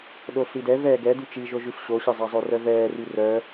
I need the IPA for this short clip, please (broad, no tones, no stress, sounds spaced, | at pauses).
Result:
ɗ o ɬ i d ɛ v ɛː ɡ ɛ d y t͡ʃ i ʒ o ʒ y ɬ ɕ o ɕ ə zˤ a zˤ o r œ v ɛː r y r œ